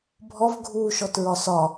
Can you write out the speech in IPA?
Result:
bʱɔv ɡʱuːʃɔtɹɒsɒ

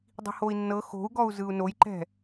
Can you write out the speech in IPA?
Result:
dˤi̤hoi̯nːɤ xo̤u̯ɡɔu̯ zɯu̯nojǃɛ̤

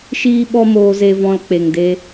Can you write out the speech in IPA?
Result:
ʃiː˦ɓɔ˦moː˧ze˧ vɔ̃˧lk͡pe˨ŋde˧

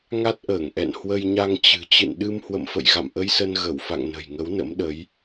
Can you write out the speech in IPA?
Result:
ŋa˦˥t̚ʔəː˧˩ŋʔɛ̰˧˨n hwə˧jɲa˧ŋt͡ɕɨ̤˨˩ t͡ɕɨ̰˧˨nɗɨ˧m hwə̰˧˨mfə̰˧˨j ɣa̰˧˨mʔə˧jsə˧n ɣə˧˩wfa̰˧˨ŋ nə̤˨˩jŋə˨˦wnə̰˧˥mɗə˨˦j

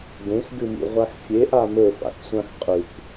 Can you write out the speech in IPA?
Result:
ɡẽxɡɨmḭ ʁʷaxfʲeʔa mɵfa̰ksʷãx qʼʉk

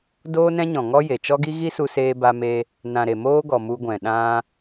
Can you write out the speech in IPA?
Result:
doː˦nɛ̃˦ɲɔ̃˨ ŋɔ˦je˨t͡ʃɔ˦ɡi˦ ɣi˦su˧seː˧ba˧ me˦ | nã˨ ɾe˨moː˦ɡɔ˨ mu˧ɡʷɛ̃˨ ɗã˧

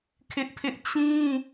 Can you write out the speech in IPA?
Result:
kʰɪ˦ʔpʰɪ˦ʔ t͡ɕĩ˦

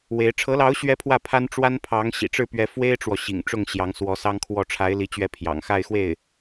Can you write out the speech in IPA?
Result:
we˧˥ɪ̯ ʈ͡ʂʰɤ˧˥lɑ˧˥ʊ̯ɕɥɛ˧˥ pʰwä˥˩pʰa˥n ʈ͡ʂwa˥npʰɑ˧˥ŋ ɕḭ˨˩ʈ͡ʂɻ̩˥˩pɥɛ˧˥ fwe˥ɪ̯ʈ͡ʂwɔ˨ɕḭ˨˩ŋ ʈ͡ʂʊ˥˩ŋɕjɑ˧˥ŋswɔ˧˥ sɑ˥ŋkʰwɔ˥˩ ʈ͡ʂʰa˧˥ɪ̯li˧˥t͡ɕɥɛ˧˥ pʰjɑ̰˨˩ŋxa˥˧ɪ̯xwe˥˩ɪ̯

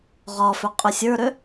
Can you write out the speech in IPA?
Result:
ʁɒfʏ qʼʏsʲə˞ɾʏ

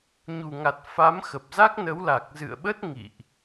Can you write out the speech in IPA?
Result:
ɲu˨˩ŋa˨˩t̚ fa˨˦mxə˨˩p̚za˦˥k̚ nə˨˦wla˨˩k̚zɨ̰˧˨ə̯ɓə˦˥t̚ ŋḭ˧˨ʔ

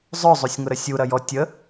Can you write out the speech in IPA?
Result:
zˤœzˤosʲŋʊɾə sʲuɾɐjɔ tʲə

